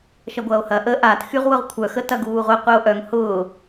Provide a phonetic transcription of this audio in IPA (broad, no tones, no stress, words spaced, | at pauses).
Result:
ʃɐɡʷɐːo̯hɐ ʔə ʔat xyʁwʊʁkʷʰœ xətɐɡuːʁʷɛ qʷɛo̯ʔœŋ hʊː